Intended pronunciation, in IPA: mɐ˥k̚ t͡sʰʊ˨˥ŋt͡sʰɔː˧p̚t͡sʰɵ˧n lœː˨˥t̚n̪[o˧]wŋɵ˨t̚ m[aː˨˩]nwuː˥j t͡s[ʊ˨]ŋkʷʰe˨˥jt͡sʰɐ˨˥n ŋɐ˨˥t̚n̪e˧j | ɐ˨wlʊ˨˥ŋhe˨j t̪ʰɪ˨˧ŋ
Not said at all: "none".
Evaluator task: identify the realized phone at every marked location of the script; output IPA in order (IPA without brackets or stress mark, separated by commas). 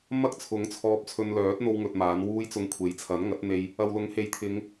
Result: o˧, aː˨˥, ʊ˧